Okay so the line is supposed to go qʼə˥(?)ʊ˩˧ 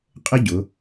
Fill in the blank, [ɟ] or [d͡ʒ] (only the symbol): ɟ